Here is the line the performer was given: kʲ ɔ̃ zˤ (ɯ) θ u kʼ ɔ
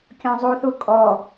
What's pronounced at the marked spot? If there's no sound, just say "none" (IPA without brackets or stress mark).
u